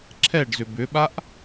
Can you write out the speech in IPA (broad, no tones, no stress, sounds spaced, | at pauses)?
ǁʰ ɛ ɖ z ʏ b ʏ ɓ a ʔ